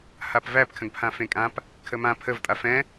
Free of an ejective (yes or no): no